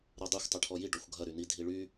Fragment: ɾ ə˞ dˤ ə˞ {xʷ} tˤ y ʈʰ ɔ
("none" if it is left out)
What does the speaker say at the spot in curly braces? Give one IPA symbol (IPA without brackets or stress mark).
xʷ